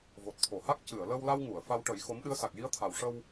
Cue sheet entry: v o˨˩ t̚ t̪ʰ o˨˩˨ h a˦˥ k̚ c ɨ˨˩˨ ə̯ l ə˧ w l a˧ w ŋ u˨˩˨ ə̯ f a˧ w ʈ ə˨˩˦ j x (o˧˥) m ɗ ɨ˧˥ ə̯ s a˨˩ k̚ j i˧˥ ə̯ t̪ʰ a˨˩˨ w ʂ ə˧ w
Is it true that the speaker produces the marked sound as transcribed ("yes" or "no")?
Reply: yes